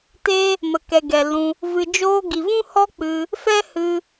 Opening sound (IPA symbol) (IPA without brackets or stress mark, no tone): t